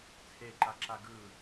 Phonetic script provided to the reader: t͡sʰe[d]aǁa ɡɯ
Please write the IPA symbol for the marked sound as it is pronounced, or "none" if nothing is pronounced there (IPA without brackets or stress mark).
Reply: ǃ